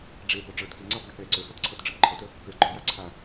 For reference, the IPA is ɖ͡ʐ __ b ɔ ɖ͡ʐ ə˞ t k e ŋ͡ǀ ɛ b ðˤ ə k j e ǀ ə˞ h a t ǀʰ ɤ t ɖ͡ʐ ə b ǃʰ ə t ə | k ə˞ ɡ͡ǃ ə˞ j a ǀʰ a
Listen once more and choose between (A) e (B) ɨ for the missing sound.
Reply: A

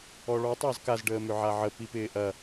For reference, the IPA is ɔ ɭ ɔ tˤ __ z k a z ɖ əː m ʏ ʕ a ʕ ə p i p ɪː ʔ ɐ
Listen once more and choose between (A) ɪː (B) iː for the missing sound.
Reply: A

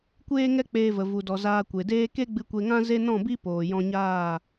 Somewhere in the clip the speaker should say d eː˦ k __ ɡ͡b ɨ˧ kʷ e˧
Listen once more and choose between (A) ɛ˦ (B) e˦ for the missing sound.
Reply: B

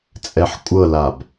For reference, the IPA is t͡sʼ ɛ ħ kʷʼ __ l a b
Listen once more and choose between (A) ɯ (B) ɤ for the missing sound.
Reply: B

